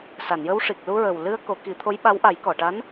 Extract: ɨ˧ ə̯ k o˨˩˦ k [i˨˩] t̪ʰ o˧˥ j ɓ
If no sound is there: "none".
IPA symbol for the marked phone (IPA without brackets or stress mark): i˨˩˦